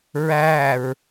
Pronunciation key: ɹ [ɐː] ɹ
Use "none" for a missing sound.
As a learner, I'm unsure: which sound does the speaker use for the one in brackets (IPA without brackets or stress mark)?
æː